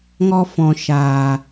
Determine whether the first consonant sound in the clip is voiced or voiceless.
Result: voiced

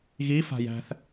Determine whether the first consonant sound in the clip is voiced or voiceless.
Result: voiced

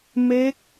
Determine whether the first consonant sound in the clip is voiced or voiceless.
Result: voiced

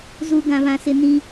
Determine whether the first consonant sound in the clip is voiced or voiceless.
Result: voiced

